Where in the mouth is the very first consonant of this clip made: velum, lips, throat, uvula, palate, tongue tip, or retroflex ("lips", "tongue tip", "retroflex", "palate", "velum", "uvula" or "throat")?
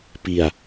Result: lips